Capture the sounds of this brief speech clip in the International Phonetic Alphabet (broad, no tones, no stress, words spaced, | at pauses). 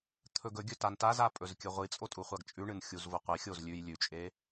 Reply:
t̪ʰɵɡɵɡʲɵ tantaza pʼɵzkʲɨʁʷit͡sʼo tʼuχʷaɡt͡ʃʼʉɳɨn xʲuzvoqʷixʲoz lʲʉj lʲʉt͡ʃʼe